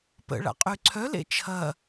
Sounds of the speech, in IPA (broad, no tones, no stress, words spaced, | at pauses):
pə̰ɭa̰ qʼyǀʰœlḛ t͡ʃʰɐ